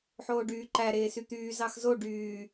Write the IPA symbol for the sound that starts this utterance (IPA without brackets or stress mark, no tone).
ħ